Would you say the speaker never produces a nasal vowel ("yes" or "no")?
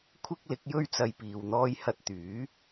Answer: yes